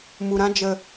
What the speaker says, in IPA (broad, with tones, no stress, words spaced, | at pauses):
mu˨ɾã˦ d͡ʒə˨